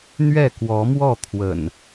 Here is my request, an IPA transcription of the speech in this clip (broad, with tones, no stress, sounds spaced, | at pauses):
n̪ ɥ ɛ˥˨ k w ɔ˨˦ m w ɔ˥˨ t̪ʰ w ə̰˨˩ n